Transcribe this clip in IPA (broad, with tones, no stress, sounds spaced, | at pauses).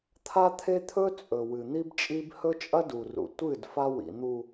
t̪ʰ a˦ t̪ʰ e˦ t̪ʰ ɵ˦ t͡sʼ ɵ˨ w ɨ˨ n̪ i˦ b t͡ʃʼ i˦ b h ɵ˦ t͡ʃʼ ɐ˦ d u˨ r ṵ˨ tʷ ɨ˦˨ d f a˦ w ḭ˨ n̪ u˨